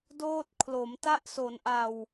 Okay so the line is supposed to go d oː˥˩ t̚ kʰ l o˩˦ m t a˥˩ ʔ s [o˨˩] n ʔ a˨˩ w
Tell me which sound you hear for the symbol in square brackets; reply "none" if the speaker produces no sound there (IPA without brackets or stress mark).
o˩˦